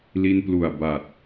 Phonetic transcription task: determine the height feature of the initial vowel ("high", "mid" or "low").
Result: high